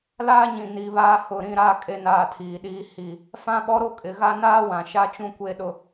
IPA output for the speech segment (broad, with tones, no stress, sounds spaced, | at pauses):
l aː˦ ɲ ĩ˨ n i˨ β aː˦ h ʊ˦˨ ɾ ĩ˦ ɾ aː˦ kʼ e˦ n aː˦˨ tʰ iː˨ ɗ iː˦ h i˦˨ | f ã˦ ɓ ɔ˦ ɾ o˦ kʼ ɪ˨ ɣ a˦ n aː˦ w ã˨ ʃ a˦ t͡ʃ ũ˦ kʷ e˦ ɗ ʊ˦